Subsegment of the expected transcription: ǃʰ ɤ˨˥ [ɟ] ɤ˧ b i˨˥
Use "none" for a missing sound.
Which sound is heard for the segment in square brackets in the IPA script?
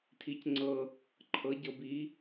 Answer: ɟ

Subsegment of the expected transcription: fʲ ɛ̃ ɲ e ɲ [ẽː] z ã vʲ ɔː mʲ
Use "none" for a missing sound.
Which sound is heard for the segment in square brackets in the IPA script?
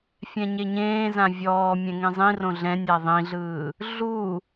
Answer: ẽː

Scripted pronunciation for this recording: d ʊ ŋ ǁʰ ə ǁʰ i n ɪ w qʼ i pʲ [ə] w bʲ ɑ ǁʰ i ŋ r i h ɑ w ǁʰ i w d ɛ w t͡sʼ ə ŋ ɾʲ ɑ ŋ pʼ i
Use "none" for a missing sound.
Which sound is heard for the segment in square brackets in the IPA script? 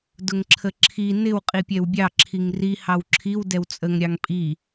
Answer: ɛ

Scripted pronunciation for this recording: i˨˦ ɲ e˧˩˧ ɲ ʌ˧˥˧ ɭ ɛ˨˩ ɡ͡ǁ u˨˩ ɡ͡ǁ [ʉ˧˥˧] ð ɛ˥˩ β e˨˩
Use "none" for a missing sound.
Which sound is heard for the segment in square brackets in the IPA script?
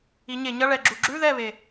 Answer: ʉ˧˥˧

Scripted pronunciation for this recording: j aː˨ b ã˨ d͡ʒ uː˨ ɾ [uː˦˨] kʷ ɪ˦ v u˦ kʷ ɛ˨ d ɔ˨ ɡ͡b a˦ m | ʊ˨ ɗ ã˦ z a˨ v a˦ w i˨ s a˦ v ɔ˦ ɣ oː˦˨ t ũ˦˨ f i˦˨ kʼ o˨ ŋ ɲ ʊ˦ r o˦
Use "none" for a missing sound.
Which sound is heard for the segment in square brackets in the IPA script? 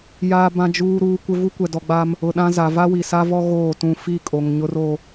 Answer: uː˨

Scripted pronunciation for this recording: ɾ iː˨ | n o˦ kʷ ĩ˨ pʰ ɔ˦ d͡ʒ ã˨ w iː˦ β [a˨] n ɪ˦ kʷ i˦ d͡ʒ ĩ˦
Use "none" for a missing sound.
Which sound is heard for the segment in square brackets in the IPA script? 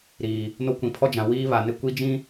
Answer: a˨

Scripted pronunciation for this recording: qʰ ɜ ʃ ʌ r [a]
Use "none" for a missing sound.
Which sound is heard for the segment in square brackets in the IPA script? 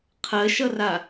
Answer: a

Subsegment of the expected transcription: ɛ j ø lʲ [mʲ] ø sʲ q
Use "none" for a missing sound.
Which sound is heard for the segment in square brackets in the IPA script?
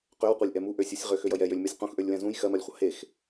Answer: m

